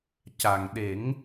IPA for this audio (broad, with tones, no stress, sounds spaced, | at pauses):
c a˨˩ ŋ ɗ e˨˩˦ ŋ